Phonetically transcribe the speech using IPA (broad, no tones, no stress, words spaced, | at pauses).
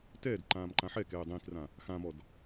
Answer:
tɛːd ǃãːmǃãħɛ kɛːdˤĩkrã | xãmɔd